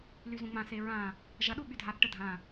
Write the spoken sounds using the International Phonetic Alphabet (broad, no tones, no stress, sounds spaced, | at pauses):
l y z ũ ŋ͡m ã s e ɹ ã | ʒ ɐ ɗ u ɓ y dʱ a θ ʈ ə dʱ ã